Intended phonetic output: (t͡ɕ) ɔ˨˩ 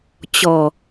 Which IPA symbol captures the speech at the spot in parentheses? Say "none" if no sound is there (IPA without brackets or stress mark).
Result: t͡ɕ